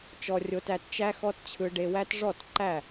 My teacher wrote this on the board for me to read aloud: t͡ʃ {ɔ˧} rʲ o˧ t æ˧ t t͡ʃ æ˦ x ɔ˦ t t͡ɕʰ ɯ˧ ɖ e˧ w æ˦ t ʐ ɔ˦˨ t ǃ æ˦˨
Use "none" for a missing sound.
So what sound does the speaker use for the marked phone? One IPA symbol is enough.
ɔ˧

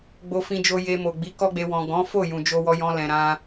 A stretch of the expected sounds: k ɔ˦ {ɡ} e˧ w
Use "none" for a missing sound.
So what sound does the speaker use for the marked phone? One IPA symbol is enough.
ɡ͡b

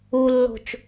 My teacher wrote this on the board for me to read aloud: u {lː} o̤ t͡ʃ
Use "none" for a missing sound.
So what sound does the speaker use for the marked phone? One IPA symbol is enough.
lː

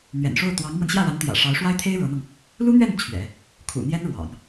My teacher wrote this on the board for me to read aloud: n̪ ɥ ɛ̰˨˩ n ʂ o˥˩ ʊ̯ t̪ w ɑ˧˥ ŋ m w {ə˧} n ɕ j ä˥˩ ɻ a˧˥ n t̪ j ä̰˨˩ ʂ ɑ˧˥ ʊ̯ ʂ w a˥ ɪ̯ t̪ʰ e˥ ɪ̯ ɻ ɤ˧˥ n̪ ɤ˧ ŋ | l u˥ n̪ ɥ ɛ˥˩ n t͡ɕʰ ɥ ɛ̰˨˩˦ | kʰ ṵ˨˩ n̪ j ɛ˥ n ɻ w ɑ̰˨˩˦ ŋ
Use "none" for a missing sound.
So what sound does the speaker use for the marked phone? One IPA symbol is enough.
ə˧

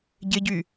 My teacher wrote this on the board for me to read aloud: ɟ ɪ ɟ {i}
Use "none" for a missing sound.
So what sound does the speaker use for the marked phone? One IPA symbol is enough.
y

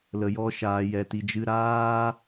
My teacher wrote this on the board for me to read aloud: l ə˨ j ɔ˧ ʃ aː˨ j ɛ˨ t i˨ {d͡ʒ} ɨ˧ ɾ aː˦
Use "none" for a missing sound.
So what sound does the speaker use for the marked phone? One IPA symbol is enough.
d͡ʒ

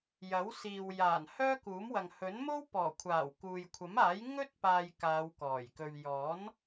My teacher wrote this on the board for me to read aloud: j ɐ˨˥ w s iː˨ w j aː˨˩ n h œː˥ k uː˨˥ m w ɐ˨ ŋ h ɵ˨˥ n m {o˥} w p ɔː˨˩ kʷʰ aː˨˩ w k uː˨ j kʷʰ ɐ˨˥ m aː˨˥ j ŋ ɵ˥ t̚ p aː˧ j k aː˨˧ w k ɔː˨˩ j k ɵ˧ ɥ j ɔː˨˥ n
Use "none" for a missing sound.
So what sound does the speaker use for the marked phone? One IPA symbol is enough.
o˥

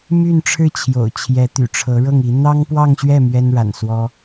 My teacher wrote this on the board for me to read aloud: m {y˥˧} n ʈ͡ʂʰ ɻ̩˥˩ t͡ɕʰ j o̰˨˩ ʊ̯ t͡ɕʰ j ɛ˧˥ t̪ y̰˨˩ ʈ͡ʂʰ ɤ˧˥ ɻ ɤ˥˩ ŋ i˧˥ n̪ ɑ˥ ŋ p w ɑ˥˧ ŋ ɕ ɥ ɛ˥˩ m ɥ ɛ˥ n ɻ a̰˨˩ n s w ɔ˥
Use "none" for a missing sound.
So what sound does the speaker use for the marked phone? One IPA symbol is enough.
y˥˧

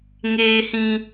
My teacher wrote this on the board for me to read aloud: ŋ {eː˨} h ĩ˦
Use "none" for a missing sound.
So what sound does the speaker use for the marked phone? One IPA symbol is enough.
eː˦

